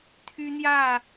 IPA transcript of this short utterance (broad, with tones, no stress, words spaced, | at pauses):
t̪ʰy˦n̪jä˥˨